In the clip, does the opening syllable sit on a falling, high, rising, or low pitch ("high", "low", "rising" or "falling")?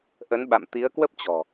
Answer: rising